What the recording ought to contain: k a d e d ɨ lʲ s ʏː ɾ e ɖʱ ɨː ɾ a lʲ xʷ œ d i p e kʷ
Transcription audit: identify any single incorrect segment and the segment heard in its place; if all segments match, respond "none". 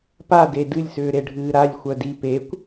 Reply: k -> p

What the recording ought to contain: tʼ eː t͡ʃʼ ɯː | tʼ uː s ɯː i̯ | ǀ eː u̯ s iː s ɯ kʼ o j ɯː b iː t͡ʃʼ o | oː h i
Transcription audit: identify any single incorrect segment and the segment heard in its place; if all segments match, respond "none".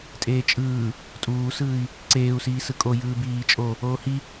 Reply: none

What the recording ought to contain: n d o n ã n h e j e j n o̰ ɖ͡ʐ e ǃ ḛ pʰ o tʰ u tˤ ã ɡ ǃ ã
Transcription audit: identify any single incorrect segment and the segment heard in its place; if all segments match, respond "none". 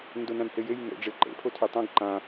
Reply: none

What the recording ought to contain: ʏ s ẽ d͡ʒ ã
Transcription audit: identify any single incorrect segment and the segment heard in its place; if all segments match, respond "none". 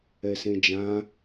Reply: ʏ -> ɛ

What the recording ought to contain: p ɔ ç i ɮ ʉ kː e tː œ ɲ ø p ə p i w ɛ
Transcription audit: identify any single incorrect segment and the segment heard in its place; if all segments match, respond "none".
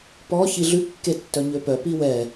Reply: ə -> œ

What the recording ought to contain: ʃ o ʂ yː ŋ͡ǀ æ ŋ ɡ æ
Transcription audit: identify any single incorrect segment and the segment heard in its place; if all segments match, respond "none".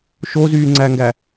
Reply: ʂ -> z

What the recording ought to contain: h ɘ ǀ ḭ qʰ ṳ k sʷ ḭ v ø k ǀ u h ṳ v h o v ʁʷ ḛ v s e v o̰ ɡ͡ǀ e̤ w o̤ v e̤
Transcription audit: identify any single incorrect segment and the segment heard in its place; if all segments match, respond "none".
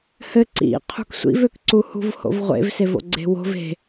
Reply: o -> o̰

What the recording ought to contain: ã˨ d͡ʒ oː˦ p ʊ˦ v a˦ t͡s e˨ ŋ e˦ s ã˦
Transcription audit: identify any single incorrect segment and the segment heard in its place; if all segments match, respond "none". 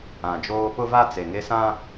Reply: none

